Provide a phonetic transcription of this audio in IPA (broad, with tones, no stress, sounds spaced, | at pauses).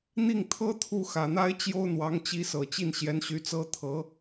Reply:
n̪ i˥˩ ŋ t̪ʰ ɤ˥ t̪ʰ u˥˩ x ä˨˩ n̪ a˥ ɪ̯ t͡ɕ j o˥ ʊ̯ n̪ w ɑ˧˥ ŋ t͡ɕ i˧˥ s ɤ˨˩ t͡ɕ i˥˩ n ɕ j ɛ˧˥ n ɕ y˧˥ t͡s ɤ˥ t̪ʰ ɤ˧˥